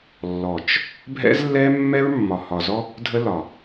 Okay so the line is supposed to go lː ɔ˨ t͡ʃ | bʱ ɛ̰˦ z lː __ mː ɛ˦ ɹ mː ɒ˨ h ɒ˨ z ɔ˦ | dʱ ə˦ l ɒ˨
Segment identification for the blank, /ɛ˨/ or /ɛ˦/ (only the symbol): ɛ˦